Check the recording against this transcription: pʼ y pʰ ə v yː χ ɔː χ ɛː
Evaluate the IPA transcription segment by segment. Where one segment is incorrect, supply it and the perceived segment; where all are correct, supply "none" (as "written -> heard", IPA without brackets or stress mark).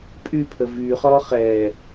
none